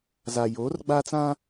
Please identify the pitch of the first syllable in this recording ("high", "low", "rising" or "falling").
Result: low